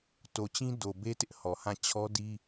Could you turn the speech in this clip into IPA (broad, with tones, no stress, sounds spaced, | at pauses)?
t o˨ t͡ɕ ĩ˦ d o˨ b e˦ t ɪ˦ ʔ h ɔ˨ h ã˦˨ t͡ɕʰ ɔ˦ d i˦